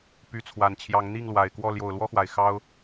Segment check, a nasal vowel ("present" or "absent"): absent